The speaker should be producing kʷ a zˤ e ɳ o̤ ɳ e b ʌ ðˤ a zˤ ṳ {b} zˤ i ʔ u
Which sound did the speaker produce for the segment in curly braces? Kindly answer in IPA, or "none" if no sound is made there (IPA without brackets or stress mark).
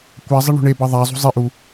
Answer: none